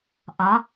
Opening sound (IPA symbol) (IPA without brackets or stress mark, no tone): ʔ